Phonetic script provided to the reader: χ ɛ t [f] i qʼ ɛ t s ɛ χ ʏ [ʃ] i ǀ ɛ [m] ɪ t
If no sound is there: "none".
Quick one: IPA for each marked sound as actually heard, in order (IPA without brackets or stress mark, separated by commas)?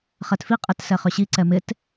f, ɕ, m